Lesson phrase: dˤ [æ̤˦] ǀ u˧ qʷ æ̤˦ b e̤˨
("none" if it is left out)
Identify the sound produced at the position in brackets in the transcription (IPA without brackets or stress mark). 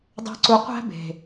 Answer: æ̤˦